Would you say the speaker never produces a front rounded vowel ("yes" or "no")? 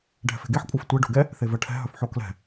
no